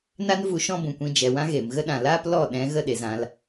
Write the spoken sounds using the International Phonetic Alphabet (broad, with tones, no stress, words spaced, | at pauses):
na˦nvu˧ ʃɔ̃˦bũ˨kʷĩ˧ d͡ʒɛ˨ wã˦ɣeː˨m ɣə˦ɗã˨ laː˦plɔ˦˨ ɗɛ̃˨˦ɣə˧ ɗe˨zã˧l